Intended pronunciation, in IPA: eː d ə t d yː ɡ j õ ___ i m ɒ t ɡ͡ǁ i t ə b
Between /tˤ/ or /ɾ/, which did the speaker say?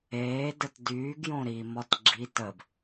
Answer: ɾ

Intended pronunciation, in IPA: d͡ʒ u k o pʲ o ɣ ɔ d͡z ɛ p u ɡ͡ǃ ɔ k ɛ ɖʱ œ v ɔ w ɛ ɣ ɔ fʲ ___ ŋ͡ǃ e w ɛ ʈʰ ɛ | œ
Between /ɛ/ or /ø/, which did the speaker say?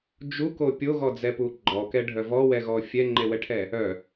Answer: ɛ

